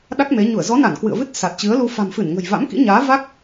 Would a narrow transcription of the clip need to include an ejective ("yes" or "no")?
no